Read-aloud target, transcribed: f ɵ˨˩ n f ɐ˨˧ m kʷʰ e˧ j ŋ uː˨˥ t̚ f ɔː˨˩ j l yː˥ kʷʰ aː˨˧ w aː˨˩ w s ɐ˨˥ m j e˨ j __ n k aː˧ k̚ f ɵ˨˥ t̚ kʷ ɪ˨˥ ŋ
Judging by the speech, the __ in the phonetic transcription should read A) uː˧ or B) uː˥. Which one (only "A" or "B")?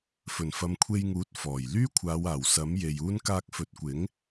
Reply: B